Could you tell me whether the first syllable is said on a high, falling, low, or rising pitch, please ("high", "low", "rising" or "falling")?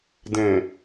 low